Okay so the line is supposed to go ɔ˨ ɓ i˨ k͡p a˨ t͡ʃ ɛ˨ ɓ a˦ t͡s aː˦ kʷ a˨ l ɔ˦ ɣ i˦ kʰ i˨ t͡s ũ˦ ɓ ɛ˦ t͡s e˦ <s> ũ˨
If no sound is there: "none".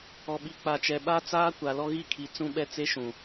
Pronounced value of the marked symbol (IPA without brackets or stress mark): ʃ